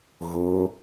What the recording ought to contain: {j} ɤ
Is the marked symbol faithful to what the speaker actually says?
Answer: no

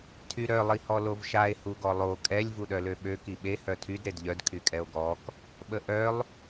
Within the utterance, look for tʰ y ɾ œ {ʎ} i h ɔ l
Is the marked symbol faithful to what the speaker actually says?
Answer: no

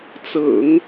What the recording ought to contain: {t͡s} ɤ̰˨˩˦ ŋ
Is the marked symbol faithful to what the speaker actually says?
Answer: yes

